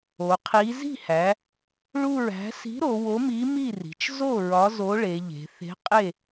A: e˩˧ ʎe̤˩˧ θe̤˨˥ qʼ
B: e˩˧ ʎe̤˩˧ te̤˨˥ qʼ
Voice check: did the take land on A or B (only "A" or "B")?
A